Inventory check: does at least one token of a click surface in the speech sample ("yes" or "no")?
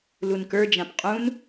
no